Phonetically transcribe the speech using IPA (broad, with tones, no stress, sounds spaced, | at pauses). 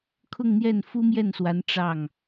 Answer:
kʰ ʊ˥˧ ŋ n̪ j ɛ˥˩ n f u˥ m j ɛ˥˩ n s w a˧˥ n ʈ͡ʂ ɑ˥˩ ŋ